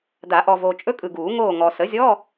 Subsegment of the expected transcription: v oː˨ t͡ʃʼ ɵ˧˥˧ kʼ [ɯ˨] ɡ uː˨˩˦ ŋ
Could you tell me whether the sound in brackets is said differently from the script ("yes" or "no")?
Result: no